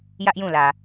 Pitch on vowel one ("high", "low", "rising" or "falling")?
high